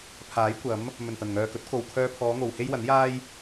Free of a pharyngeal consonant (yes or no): yes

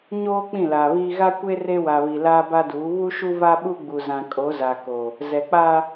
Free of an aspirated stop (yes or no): yes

